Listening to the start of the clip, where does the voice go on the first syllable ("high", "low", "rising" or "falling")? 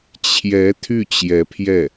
rising